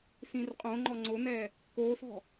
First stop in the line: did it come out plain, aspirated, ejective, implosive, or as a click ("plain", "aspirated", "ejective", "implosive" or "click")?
ejective